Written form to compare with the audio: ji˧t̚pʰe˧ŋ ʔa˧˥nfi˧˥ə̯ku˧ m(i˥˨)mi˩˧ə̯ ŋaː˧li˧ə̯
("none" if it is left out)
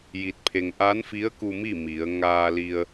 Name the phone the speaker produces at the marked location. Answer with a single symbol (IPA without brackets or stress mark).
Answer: i˥˨